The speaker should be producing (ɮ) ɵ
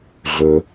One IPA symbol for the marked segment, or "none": ɮ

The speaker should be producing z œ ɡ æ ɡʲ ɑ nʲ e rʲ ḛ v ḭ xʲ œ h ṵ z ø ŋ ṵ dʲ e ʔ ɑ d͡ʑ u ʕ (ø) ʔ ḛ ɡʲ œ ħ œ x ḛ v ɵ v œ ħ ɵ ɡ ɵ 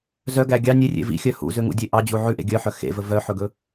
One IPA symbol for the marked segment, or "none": ʉ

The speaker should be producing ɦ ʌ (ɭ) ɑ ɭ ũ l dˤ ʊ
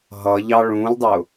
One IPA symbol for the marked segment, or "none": ʎ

